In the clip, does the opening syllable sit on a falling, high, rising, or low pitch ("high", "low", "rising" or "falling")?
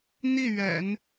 falling